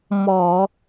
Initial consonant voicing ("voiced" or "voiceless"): voiced